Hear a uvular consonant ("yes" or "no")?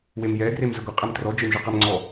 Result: yes